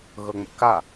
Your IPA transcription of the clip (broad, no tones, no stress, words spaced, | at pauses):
ɣɤŋ͡mə̰ka